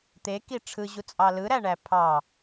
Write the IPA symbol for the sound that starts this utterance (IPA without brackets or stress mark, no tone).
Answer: t̪